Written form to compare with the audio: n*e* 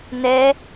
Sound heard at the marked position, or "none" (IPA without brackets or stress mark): ɛ